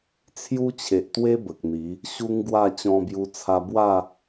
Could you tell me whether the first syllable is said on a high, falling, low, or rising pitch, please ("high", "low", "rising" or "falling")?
high